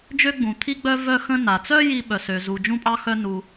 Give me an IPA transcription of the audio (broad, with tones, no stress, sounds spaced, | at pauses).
d͡ʒ ø˥ ɡ͡b ũ˩ t̪ʰ i˥ ɡ͡b œ˥ v œ˥ x ə̃˥ n a˩ t͡s œ˥ j i˥ ɓ œ˩ s ø˩ z u˩ d͡ʒ ũ˥ pʼ ɑ˥ x œ˥ n u˩